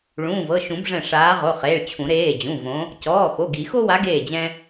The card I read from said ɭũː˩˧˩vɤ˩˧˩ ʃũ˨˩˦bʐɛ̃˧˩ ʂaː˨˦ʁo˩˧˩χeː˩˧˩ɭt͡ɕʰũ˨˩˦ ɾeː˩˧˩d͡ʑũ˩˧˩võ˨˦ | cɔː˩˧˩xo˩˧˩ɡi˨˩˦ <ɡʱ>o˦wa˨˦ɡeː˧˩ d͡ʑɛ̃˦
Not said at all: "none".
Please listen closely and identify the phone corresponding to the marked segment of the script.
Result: x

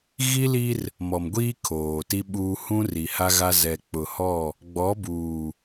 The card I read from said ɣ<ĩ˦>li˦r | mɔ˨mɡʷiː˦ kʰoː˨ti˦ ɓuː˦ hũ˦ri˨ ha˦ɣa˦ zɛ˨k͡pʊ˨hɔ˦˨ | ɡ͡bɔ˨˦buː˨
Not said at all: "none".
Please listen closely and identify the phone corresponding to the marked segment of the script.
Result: i˦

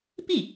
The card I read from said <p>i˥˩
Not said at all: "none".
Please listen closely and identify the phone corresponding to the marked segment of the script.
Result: p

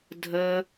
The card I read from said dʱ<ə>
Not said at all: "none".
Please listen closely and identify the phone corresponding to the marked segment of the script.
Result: ə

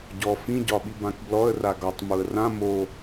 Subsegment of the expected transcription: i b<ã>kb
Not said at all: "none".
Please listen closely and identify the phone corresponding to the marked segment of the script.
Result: ã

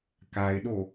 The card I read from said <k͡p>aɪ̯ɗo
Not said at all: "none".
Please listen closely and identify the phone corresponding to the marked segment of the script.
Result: k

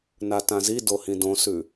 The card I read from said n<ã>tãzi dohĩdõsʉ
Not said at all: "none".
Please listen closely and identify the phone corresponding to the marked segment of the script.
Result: a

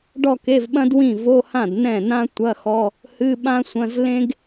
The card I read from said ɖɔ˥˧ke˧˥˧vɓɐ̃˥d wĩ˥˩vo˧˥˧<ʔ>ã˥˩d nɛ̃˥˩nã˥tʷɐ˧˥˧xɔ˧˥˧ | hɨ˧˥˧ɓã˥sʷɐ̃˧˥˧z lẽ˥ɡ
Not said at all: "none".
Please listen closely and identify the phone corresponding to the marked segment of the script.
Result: h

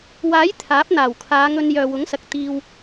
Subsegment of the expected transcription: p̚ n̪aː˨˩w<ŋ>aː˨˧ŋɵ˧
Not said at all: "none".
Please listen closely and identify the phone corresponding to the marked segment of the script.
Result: kʰ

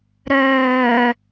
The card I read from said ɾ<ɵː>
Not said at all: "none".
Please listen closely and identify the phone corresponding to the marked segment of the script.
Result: œː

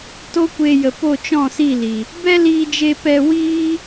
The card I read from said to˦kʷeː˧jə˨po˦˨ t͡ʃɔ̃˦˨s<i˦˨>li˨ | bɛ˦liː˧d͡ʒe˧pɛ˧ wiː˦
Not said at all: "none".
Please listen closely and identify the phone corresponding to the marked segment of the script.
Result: i˦˨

